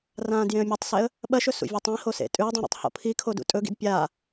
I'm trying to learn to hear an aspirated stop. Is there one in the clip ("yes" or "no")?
yes